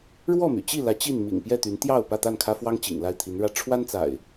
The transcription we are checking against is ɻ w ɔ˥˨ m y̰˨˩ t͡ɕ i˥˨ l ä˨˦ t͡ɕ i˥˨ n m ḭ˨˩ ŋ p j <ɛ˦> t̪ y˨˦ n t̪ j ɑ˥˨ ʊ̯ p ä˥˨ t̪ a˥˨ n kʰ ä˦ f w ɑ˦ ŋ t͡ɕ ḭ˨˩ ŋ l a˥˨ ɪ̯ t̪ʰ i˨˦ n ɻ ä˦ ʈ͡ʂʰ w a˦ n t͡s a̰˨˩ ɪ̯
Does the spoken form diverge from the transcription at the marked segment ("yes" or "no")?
yes